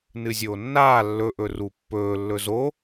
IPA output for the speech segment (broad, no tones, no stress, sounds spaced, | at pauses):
n ɨ zʲ oː nː aː lː ɵ ʔ ɵ r u pː ɵː lː ɵ z o